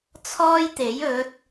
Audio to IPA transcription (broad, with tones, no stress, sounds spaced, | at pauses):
t͡sʰ ɔː˥ j t̪ e˨˥ j ɵ˨˥ t̚